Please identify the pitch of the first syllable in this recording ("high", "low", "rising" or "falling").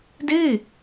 falling